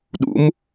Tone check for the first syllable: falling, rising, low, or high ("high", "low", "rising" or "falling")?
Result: rising